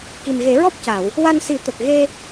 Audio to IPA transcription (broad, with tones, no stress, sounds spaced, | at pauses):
k i˨˩ m ɣ e˨˩˦ ɹ ɔ˦˥ p̚ c a˨˩˨ w | w a˧ n s i˨˩˦ t̪ ə˨˩ k̚ ɣ e˧